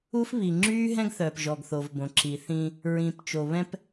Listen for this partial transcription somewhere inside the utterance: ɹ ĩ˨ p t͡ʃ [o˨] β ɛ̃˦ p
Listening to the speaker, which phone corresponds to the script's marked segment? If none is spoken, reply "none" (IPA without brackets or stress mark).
o˨